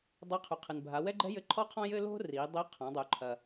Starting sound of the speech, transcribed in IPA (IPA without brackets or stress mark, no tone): dˤ